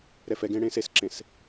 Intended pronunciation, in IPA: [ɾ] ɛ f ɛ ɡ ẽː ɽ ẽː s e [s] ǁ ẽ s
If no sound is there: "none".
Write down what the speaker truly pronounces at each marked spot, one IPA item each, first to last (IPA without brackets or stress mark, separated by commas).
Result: ɾ, s